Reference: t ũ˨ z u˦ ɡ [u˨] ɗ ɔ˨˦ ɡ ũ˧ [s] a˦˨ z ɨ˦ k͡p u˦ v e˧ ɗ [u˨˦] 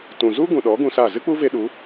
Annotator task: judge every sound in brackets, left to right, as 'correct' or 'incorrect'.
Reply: incorrect, correct, correct

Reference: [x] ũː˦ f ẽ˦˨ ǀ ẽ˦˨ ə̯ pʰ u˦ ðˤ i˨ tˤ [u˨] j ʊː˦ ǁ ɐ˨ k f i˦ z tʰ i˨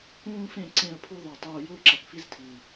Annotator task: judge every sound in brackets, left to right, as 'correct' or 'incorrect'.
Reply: incorrect, incorrect

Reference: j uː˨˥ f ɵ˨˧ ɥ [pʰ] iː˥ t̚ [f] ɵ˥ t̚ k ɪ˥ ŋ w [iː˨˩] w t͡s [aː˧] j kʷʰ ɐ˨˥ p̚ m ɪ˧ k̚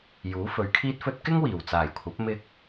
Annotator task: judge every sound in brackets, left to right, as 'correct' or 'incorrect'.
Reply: incorrect, correct, correct, incorrect

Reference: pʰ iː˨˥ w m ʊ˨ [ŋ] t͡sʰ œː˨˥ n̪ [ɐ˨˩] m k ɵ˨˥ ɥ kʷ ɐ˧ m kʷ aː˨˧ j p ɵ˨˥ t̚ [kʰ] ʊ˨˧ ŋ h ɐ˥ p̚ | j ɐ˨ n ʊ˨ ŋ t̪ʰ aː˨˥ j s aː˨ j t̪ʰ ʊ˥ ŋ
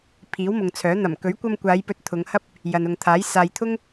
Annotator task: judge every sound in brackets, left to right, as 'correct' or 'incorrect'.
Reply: correct, correct, incorrect

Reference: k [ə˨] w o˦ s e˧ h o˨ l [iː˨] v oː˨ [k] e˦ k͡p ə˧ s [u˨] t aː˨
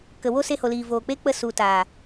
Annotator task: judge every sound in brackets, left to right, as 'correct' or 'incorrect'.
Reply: correct, correct, incorrect, correct

